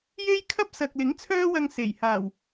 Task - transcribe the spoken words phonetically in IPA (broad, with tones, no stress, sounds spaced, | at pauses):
j e˥ j kʰ ɐ˥ p̚ s ɐ˨ k̚ l ɪ˨˥ ŋ t͡sʰ œː˥ w ɐ˧ ŋ s e˨˩ j h aː˨˩ w